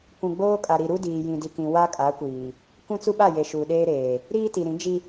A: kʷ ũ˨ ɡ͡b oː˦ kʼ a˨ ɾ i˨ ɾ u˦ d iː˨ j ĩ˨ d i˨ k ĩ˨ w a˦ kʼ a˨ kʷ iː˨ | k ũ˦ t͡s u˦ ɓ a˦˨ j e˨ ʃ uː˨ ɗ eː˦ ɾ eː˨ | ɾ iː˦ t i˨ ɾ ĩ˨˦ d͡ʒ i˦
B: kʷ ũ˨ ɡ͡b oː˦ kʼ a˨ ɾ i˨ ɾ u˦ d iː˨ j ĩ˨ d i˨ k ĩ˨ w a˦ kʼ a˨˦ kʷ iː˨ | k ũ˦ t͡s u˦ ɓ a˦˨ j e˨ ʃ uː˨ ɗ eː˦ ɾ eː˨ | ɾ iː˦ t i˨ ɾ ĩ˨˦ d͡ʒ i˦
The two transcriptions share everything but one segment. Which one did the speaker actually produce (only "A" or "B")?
B